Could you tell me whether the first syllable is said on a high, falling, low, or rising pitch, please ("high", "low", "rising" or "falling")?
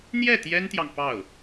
falling